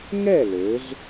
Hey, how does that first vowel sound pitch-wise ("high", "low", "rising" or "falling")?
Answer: falling